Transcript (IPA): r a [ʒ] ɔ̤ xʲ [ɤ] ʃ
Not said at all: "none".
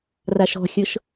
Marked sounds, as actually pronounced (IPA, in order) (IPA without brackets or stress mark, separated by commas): ʃ, ɤ